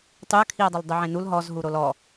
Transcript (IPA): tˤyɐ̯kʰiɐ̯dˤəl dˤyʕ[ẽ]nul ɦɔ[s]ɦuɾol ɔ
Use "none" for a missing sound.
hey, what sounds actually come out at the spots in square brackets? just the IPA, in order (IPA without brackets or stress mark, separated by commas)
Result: ẽ, z